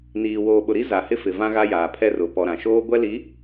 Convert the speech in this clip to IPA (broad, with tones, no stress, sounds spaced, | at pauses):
n iː˨ w oː˨ ɓ ʊ˨ ɾ i˦ z a˨ h ɪ˦ f ɪ˨ v ã˦ ɣ a˦ j aː˨ pʰ ɛ˦ r ʊ˨ p ɔ˨ ɾ ã˨ ʃ oː˦ ɡʷ ɛ˦ l i˨˦